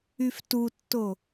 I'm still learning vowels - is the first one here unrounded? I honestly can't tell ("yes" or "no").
no